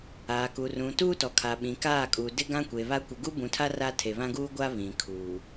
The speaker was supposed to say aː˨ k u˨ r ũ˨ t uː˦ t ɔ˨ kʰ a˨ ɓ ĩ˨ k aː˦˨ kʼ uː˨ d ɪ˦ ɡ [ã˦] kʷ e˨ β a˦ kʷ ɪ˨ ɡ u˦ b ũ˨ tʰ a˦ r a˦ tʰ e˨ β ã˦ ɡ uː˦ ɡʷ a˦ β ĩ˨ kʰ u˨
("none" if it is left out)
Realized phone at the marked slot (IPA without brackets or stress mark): ã˦